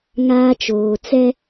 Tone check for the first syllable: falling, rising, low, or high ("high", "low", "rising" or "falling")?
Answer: high